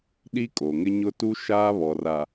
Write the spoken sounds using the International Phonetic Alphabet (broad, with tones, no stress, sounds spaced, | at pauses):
ɗ i˦ kʼ o˨ ŋ ɪ˦ ɲ ʊ˦ t u˦ ʃ aː˦ β ɔ˨ r a˨